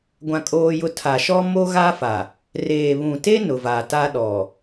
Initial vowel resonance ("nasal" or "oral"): nasal